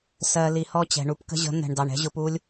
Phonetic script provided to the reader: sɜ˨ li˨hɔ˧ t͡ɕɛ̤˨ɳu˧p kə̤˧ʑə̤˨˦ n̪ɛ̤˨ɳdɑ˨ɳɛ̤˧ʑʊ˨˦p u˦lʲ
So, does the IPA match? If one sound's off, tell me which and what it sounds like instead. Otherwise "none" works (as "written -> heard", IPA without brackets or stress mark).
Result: none